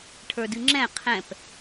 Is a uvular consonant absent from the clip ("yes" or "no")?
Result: no